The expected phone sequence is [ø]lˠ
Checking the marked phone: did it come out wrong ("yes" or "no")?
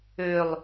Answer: no